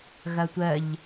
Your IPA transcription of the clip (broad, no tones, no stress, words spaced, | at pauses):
ɣɐtʷɜʎ